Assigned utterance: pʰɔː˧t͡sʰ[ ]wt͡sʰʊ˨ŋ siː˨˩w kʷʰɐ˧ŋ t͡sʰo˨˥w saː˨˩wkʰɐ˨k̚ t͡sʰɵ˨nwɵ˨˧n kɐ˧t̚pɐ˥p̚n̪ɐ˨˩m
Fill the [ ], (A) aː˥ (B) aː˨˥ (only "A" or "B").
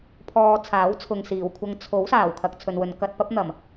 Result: B